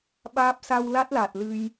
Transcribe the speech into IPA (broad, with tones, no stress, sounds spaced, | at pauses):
ɓ aː˦˥ p̚ s a˧ w l a˦˥ t̚ l aː˨˩ t̚ l ɨ˧ j